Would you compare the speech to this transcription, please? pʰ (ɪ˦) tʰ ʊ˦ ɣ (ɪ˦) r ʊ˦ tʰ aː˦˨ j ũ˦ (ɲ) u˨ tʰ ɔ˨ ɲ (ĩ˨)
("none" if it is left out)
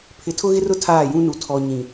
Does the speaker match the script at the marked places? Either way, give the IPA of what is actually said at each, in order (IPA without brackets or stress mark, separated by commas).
ɪ˨, ɪ˦, n, ĩ˨